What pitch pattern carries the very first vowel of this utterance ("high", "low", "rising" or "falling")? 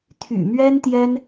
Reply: low